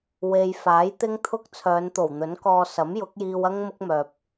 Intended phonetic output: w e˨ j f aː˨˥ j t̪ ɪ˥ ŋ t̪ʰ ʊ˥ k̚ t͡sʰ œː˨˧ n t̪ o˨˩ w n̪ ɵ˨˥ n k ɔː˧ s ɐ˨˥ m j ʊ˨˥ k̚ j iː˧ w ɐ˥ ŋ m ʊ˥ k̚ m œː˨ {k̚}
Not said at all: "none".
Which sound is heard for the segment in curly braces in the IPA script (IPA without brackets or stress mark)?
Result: p̚